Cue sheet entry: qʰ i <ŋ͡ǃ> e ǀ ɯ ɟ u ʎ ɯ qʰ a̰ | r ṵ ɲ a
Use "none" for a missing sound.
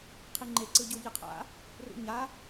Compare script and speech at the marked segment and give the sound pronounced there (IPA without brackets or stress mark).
ŋ͡ǃ